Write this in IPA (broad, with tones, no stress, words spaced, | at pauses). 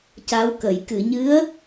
ca˧˥wkə˨˩˨j kɨ˨˩˨ɲɨ˧˥ə̯